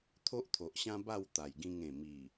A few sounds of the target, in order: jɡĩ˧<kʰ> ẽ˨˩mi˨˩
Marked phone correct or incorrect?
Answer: incorrect: ŋ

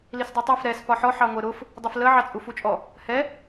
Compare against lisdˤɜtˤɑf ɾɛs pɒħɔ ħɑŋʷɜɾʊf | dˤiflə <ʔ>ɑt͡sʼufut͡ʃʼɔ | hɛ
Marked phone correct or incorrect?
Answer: incorrect: ʕ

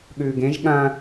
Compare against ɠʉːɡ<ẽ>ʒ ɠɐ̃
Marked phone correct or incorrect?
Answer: correct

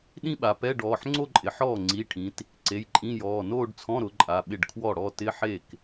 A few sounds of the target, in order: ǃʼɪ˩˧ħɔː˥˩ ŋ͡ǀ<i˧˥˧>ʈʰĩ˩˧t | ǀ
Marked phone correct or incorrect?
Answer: incorrect: i˩˧˩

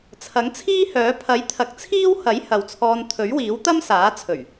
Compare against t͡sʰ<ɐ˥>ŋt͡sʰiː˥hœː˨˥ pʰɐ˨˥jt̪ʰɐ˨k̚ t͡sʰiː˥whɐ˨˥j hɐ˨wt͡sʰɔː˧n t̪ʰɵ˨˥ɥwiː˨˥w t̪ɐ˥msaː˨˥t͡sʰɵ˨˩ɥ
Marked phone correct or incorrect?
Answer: incorrect: ɐ˨˥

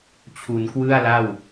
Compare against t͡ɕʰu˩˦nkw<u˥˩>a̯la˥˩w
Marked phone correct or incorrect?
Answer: incorrect: ɯ˥˩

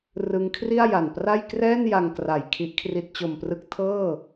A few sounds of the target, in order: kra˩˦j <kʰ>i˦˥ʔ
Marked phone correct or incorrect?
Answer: correct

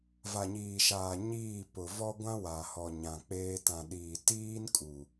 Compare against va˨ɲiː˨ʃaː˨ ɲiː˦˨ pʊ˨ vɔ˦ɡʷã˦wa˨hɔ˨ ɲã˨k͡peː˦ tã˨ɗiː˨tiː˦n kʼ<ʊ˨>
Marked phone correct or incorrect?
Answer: incorrect: u˨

